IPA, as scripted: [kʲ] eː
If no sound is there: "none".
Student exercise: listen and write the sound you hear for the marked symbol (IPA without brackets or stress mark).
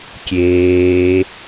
kʲ